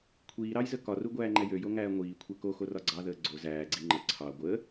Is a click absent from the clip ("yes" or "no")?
no